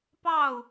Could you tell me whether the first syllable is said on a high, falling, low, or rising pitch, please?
falling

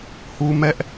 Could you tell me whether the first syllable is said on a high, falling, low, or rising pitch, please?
high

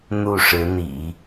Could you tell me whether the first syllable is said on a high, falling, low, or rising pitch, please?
falling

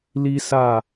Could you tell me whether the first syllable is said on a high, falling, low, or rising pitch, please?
high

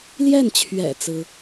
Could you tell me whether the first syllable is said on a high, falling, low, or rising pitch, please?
falling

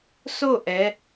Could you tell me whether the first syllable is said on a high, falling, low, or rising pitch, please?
falling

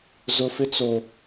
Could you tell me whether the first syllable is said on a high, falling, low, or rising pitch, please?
low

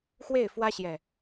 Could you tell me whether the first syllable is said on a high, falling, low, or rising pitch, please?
falling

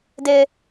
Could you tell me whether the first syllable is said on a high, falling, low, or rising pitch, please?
high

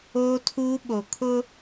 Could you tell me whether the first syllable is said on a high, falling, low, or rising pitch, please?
high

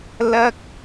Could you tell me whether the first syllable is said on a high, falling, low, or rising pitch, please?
high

